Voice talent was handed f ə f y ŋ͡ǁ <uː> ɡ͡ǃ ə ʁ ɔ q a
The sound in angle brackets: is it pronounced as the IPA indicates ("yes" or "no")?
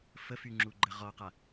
no